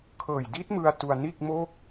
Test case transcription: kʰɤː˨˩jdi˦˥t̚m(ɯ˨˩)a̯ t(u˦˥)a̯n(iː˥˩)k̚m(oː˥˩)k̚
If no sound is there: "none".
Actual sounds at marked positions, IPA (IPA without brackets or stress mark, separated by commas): ɯ˧, u˧, iː˥˩, oː˥˩